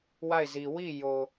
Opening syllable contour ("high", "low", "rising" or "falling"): falling